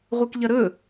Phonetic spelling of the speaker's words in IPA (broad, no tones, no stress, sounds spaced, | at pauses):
ʁʷ e k ʎ ɐ ɾ ɵ